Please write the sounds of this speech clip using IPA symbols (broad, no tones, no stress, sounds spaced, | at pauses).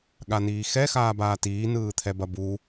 ɠ a n iː x ɛ x aː b aː t iː n ɯː t̪ʰ ɛ b ɐ b u